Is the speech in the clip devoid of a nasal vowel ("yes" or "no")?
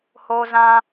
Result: no